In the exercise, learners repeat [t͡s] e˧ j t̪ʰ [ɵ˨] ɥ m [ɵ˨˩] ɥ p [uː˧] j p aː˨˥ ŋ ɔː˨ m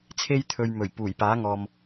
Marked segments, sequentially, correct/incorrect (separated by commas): incorrect, correct, correct, incorrect